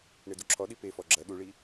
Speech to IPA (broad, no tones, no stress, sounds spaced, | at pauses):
ɳ e d u ǁʰ ɔ ɗ i p e f ɔ ɡ͡ǁ ɐ ɗ u ɭ i